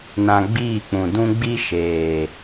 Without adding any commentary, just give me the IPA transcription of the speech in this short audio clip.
n ã˦ ɡ͡b iː˦˨ k͡p ũ˨ d ũ˦ ɡ͡b i˦ ʃ eː˨

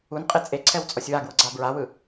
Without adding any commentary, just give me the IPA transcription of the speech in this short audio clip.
u n qʼ e t͡sʼ e ǀʰ ɛ w t͡sʼ ɔ sʲ w a ɡ w ɤ ɡ͡ǀ a b ɹ a w ɯ

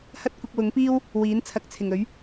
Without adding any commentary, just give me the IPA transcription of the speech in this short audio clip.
h ɐ˥ t̚ kʷ ɪ˧ k̚ w ʊ˨˥ ŋ p iː˥ w | w iː˨˥ n t͡sʰ ɐ˨˥ k̚ t͡sʰ ɪ˨˩ ŋ ɵ˨˥ ɥ

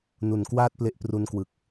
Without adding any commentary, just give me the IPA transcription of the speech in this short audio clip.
n u˨˩ n k w aː˥˩ t̚ p l e˦˥ ʔ p r u˦˥ n k w ɯ˨˩ k̚

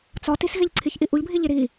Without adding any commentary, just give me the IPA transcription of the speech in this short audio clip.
t͡s ɒ t i s ɣ e ʎ ǀʰ i ç ʔ i ʔ u ʎ bʱ i ʎ i ɾ i

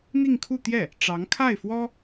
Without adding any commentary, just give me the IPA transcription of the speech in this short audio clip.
n̪ i˥˧ ŋ kʰ u˥˧ t̪ j ɛ˥˩ | ʈ͡ʂ ɑ˧˥ ŋ kʰ a˥˩ ɪ̯ f w ɔ˥

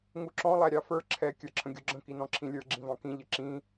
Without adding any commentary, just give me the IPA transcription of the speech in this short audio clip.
ŋ u ǁ ɔ̃ lˠ æ ɾʲ ɑ f ə˞ ǁʰ ɛ kʲ ə˞ ǁʰ ə̃ ɡʲ u ɡ͡ǁ ə̃ k i n ɔ̃ ǁʰ ĩ lʲ ə˞ ɡ͡ǁ ĩ v ɑ̃ k ĩ ʎ ə ǁ ĩ

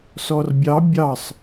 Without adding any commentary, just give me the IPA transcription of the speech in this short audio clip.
s ɔ r bʲ ɑ bʲ ɑ sˤ

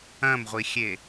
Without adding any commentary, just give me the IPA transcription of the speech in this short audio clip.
ɐ̃ m ʁʷ i xʲ e

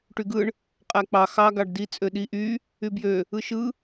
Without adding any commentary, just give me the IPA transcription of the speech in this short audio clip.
ʈ y ɡ ɯ ɳ | qʼ æ k͡p ɑ x ɑ ɡ ɑ ɖ d i t͡sʼ ø ɗ i ʔ y | y b j ø | ɯ ʃ ɯ

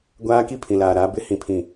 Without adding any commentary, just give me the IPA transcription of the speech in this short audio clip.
ɡʷ aː˦ k i˦ pʰ ĩ˨ l aː˨ ɾ aː˨˦ b ɪ˦ h ĩ˦˨ pʰ ĩ˦˨

